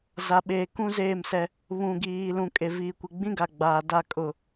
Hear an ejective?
yes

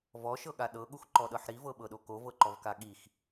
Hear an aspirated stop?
no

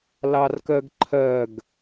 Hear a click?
yes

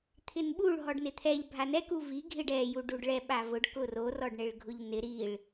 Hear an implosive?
yes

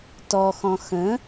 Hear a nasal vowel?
yes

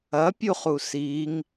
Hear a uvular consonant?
yes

